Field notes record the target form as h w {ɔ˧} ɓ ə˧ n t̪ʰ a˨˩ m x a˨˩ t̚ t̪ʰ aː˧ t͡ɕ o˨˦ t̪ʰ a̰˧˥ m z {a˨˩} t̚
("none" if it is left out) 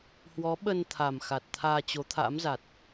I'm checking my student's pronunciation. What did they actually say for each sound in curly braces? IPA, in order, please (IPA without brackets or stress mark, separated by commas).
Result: ɔ˨˦, a˨˩